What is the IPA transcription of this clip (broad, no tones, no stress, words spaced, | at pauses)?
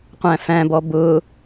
qʷæ̃fæ̃bɔ bʊ